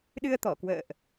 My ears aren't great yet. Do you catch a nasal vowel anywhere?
no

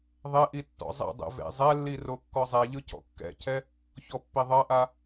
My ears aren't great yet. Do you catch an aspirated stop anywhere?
yes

